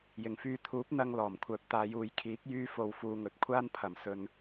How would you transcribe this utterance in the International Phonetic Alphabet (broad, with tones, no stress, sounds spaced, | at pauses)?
j ɪ˨˩ ŋ f yː˨ t̪ʰ uː˨˥ p̚ n̪ ɐ˧ ŋ l ɔː˨˩ m kʷʰ œː˨ p̚ t̪ aː˨˧ j uː˨˧ j kʰ iː˨˥ k̚ j yː˧ f o˨ w f uː˨˧ ŋ ɵ˨˥ t̚ kʷʰ aː˥ n pʰ ɐ˨ m s ɵ˧ n